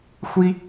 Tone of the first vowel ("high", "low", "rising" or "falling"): high